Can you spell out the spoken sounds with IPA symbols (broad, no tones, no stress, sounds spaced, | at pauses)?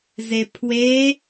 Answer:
z e pʰ w e